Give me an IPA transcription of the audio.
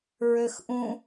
ɹ ø x ʔ ũ

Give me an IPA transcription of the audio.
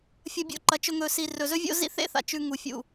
fʲ ɐ˧ bʲ o̰˧ ǃ ɐ˨ t͡ʃ ɵ˧ ŋ ɵ˨ s i˨ r ɵ˨ z ɵ˦ vʲ o̰˦ z ḭ˦ θ ḛ˦ θ a̰˨ t͡ʃ ʉ˧ ŋ u˨ fʲ ṵ˨

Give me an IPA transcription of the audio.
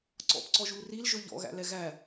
ǀ ɔ̰ p ǀ ɔ ʒ u l r i l ʒ ɵ ʎ ɔ̰ ɣ æ̰ l ɛ ɣ æ

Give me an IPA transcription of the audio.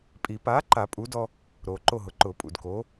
pʼ i˨˩˦ p aː˨˥ ǃ a˨˩˦ pʼ u˨˥ d ɔ˦ | ɾ oː˨ ǃ o˦˨ ɦ ʊ˨ ǃ ʊː˨˩˦ pʼ ṵ˨ d k oː˨˥

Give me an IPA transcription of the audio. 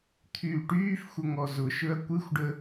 t̪ʰ yː ʈ yː f xʷ ə ŋ ɔ z ʊ ʃ ɵ ɐ̯ kʷ ɨ xʷ ɖ ə

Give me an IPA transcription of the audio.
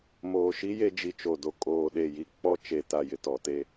m oː˨ ʃ i˦ j e˦ d͡ʒ i˨ t͡ʃ o˨ d o˨ kʼ oː˨ ɗ e˨ j i˨ k͡p ɔ˦ t͡ʃ e˨ t a˨ j ɪ˨ t ɔ˨ t e˦

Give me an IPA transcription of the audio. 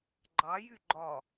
ɡ͡ǃ ɑ j y ɡ͡ǃ ɒ

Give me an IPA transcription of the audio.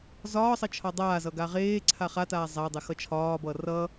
z ɒː sˤ ʌ t͡ʃʰ ɒ dˤ aː z ʌ ɡ a ʁ eː ǀʰ a χ a t aː zˤ a dˤ ɛ x ʌ t͡ʃʰ ɒː b ʌː r ʌː

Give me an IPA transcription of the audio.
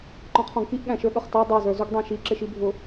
ǃ ɔ̃ qʰ ɔ̃ ɡ k i ʔ ɠ æ̃ ʃ ə˞ ɠ ʌ χ t ɑ dˤ ɑ z ə˞ z u ɡ dˤ æ̃ ʃ i ǁ ɪ ʃ i bʱ ʊ

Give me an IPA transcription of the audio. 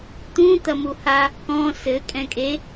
t̪ ũ t̪ ɐ m u h a | k ɔ̃ s ɘ kʼ ɛ̃ kʼ e

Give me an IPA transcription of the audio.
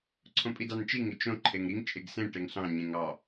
ǀʰ õ pʼ i d ɑ n t͡ʃ i ŋ ɪ t͡ʃ õ ǃʰ e ŋ ɾ i ŋ t͡ʃʼ e ɡ s ẽ ʈ e ŋ ɬ ɑ̃ ɲ ẽ ŋ ɑ

